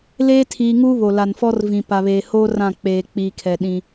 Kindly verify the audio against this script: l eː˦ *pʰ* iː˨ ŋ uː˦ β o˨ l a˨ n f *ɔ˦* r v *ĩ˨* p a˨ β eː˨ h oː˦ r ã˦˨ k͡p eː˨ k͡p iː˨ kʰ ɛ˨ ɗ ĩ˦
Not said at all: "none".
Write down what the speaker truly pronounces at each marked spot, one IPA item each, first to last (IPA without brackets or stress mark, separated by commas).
tʰ, ɔ˦, ĩ˨